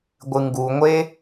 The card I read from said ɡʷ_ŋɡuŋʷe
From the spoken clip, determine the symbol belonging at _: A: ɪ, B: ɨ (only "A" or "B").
B